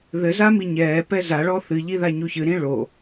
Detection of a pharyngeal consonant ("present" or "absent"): absent